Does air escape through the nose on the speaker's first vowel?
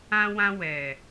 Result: yes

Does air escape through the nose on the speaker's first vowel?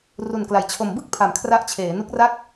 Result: no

